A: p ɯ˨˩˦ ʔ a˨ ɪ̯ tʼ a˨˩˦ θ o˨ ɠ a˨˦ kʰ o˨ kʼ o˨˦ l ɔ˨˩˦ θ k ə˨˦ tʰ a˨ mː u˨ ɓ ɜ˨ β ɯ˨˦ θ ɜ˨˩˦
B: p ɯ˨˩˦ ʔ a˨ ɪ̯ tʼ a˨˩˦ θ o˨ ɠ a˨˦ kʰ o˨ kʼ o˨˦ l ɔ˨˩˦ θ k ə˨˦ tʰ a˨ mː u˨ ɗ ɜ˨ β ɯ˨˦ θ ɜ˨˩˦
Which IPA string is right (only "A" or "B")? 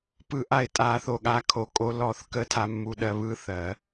B